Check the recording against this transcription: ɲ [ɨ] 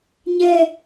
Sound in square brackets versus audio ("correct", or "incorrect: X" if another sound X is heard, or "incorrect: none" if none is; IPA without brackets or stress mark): incorrect: ɛ